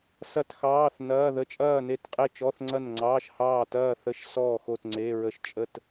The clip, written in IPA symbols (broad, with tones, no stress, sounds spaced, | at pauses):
s ɐ˥˨ t x ɑː˧˥˧ θ n ɐː˧˥˧ ð ə˧˥˧ t͡ʃʼ ɐː˥˨ n e˥˨ t qʼ e˥˨ t͡ʃ ɔ˧˥˧ θ ŋ͡ǀ ɐ˥˨ n ŋ͡ǀ ɑː˧˥˧ ʃ h ɑː˥˨ t ɐː˥˨ θ ə˧˥˧ ʃ s ɔː˥˨ x o˥˨ t ŋ͡ǀ e˧˥˧ ɹ ə˥˨ ʃ t͡ʃʼ ə˥˨ t